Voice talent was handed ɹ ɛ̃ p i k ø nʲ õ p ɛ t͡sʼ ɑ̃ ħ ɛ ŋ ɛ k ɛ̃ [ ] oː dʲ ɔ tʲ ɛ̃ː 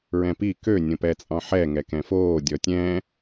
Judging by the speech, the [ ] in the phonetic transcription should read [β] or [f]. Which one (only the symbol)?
f